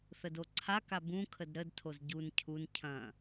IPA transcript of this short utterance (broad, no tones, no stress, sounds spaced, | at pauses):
θ ə d o ǀʰ a k a b ũ kʰ ə d ɾ ə d tʰ o z ɟ u n cʰ u n cʰ ɐ̃